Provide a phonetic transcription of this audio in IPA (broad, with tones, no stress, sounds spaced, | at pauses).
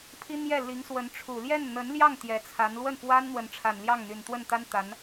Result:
pʰ i˥ n̪ j ɛ˥˩ l i˧˥ ŋ s w ə˧˥ n ʈ͡ʂʰ u˨˩ l j ɛ˥˩ n n̪ ə˧˥ n l j ɑ˥˩ ŋ t̪ j ɛ˧˥ t͡sʰ a˧˥ n l w ə˥˩ n f w a˥ n n̪ w ə˧˥ n ʈ͡ʂʰ a˨˩ n l j ɑ˥˩ ŋ n̪ y˨˩ n t̪ w ə˥˩ n t̪ a˥ n t̪ a˧˥ n